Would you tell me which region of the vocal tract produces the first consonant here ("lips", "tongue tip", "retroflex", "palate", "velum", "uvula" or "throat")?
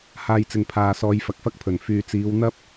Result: throat